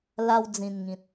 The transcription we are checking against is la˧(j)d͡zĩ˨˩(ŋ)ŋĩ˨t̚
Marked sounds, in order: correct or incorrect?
incorrect, incorrect

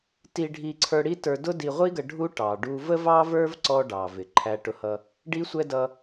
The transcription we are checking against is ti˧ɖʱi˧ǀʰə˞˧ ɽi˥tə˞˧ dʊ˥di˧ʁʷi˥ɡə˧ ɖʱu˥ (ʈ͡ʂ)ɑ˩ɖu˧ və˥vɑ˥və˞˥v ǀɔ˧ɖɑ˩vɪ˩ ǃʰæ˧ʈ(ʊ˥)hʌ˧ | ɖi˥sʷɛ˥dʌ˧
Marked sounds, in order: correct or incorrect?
incorrect, incorrect

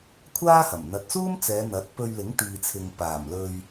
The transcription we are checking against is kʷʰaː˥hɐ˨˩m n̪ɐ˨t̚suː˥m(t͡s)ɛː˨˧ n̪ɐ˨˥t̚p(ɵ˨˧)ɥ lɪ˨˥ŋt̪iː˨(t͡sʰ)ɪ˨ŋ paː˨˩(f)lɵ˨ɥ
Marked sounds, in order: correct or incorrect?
correct, incorrect, correct, incorrect

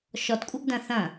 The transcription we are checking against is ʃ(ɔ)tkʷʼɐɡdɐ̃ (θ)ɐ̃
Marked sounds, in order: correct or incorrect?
correct, correct

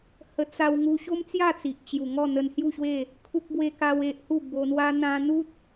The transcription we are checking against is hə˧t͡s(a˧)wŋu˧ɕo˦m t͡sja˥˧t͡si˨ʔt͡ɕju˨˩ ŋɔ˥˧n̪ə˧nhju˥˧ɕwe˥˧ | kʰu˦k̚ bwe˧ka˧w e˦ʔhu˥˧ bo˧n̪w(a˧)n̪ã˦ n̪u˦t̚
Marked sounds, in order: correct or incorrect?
correct, incorrect

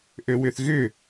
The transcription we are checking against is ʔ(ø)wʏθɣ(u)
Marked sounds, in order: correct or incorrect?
correct, incorrect

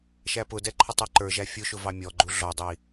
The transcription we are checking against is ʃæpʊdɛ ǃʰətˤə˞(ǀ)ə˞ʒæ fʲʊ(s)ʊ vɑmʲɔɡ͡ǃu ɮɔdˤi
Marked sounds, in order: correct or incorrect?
incorrect, incorrect

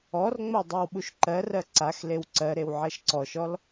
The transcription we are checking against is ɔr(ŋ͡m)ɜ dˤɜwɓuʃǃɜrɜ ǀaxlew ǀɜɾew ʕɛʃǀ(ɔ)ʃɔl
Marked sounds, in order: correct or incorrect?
correct, correct

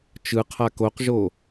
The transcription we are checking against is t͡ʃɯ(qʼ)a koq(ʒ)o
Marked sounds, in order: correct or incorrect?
incorrect, correct

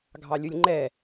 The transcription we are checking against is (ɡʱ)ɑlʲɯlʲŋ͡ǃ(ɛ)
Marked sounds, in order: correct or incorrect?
correct, correct

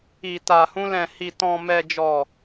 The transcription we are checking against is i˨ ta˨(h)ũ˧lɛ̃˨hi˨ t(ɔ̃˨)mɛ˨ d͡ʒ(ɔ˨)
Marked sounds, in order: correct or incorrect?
correct, correct, correct

